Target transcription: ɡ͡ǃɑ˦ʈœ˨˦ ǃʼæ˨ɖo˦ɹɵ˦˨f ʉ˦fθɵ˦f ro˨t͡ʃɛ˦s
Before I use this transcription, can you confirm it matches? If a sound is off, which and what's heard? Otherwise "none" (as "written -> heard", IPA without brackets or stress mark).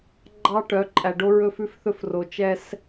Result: none